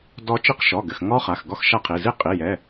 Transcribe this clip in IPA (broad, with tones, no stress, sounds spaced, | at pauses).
d ɔ˦˥ t͡ʃ i˦˥ q ʃ ɔ˩˧˩ ɡ ɘ˩˧˩ x ŋ ɔ˦˥ χ a˩˧˩ x ɡ ɔ˦˥ x ʃ a˦˥ qʰ i˩˧˩ z i˦˥ qʼ i˩˧˩ j ɛ˩˧˩